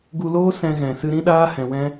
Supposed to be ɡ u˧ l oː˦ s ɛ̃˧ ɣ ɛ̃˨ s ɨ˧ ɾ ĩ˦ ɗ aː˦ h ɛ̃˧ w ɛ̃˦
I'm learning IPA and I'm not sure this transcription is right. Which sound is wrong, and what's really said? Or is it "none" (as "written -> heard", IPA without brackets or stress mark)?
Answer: none